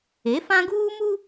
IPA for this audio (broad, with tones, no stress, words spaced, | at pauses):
e˨˦fã˦ɡuː˦mu˦